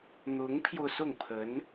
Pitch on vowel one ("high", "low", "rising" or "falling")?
rising